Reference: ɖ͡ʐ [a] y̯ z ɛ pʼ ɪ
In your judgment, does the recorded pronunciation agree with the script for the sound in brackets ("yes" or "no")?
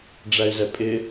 no